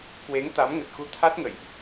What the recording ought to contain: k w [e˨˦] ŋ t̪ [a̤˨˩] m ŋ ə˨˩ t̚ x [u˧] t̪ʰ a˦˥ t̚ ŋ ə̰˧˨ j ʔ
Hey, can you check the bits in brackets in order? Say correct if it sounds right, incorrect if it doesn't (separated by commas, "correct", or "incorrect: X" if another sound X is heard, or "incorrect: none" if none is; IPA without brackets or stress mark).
correct, incorrect: a˨˦, correct